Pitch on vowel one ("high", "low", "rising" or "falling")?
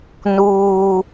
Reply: high